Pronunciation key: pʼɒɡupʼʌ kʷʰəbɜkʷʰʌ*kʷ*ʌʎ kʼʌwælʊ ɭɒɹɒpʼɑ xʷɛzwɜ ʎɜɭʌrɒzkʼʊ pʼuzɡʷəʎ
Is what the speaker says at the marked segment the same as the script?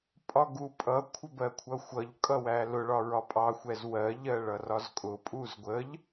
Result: no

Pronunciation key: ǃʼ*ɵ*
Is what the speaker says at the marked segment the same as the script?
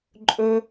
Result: yes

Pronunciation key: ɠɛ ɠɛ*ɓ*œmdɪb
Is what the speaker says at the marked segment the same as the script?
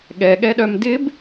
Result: no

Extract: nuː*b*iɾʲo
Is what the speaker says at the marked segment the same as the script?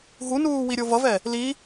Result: no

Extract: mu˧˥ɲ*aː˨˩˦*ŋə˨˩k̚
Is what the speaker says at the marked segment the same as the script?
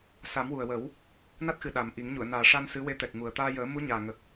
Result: no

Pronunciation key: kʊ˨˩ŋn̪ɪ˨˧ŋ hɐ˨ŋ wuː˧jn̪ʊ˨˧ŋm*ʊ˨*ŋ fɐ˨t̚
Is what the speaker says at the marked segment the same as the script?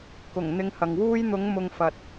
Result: yes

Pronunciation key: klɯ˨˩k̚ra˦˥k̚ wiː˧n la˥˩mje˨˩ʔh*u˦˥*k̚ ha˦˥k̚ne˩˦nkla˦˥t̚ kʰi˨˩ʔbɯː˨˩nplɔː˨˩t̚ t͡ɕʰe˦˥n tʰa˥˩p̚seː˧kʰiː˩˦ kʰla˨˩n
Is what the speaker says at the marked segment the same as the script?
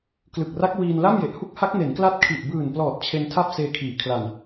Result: no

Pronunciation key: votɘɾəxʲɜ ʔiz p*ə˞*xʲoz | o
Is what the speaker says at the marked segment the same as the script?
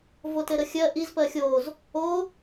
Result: no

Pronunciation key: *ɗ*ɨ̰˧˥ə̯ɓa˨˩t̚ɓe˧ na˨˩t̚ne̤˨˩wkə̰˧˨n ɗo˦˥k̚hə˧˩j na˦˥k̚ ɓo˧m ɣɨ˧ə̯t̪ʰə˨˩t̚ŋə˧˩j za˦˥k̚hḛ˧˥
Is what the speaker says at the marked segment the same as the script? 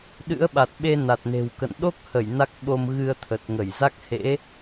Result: yes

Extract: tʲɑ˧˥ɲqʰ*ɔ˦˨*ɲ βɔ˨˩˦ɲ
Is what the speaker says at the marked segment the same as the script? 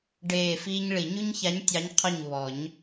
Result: yes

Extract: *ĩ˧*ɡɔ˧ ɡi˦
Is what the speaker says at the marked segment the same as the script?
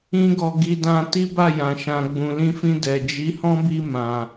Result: no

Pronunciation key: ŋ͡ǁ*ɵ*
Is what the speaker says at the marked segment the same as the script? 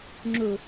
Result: yes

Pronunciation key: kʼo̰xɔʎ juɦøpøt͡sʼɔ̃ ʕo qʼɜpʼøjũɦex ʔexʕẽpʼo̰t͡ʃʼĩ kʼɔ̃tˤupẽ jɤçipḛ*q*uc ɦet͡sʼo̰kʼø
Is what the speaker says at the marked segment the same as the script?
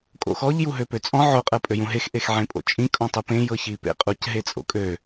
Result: no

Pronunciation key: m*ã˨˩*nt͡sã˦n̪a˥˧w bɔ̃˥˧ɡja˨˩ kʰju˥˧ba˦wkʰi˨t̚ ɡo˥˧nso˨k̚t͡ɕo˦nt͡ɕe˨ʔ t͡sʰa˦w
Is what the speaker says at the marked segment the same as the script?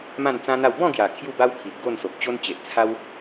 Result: no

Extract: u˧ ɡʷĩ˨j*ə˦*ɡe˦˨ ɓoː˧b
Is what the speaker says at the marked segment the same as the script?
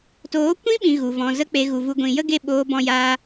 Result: yes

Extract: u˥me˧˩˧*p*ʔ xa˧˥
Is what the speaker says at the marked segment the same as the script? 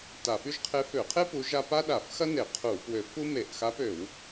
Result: no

